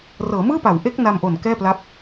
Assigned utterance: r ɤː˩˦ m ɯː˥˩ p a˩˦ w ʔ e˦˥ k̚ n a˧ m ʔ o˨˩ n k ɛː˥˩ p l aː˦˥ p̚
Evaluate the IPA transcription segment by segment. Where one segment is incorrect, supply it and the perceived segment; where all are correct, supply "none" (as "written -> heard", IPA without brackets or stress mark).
aː˦˥ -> a˦˥